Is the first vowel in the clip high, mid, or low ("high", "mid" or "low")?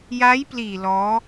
low